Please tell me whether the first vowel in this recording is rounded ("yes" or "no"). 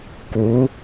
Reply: yes